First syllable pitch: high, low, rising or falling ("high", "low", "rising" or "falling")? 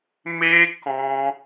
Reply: high